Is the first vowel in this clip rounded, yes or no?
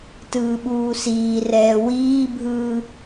no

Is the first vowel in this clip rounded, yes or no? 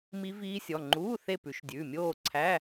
no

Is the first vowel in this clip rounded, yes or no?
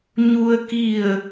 yes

